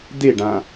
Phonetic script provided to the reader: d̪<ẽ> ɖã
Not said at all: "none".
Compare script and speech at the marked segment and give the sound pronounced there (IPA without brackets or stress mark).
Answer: e